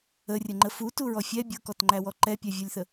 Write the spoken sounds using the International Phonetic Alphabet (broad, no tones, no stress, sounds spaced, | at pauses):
ə rʲ ə ŋ͡ǃ ə f u t u ɹ ɔ fʲ ɛ bʲ ɤ k ɔ t ŋ͡ǃ æ w ɔ ǃ ɛ pʲ æ vʲ ɤ lʲ θ ə